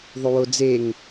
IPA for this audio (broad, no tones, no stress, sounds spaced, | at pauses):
ðˤ u w o d͡z e ŋ